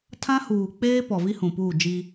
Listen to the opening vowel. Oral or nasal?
nasal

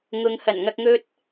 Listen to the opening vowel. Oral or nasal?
oral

